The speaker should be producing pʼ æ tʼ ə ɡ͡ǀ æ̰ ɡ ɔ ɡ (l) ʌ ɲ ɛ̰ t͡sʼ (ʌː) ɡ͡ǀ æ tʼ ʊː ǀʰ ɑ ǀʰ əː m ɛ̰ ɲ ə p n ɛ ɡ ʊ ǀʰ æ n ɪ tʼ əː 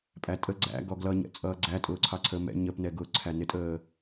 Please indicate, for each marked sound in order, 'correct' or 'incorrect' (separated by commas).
correct, correct